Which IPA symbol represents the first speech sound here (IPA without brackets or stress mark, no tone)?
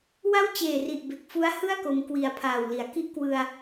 w